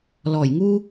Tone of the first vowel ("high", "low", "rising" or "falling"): low